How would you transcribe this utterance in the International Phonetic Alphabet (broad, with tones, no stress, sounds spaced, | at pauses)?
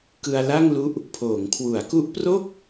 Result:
k ɯ˧ a̯ l a˥˩ ŋ l u˦˥ ʔ | pʰ oː˩˦ ŋ kʰ w u˩˦ a̯ k u˦˥ ʔ p r o˥˩ k̚